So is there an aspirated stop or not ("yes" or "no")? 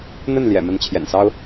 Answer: yes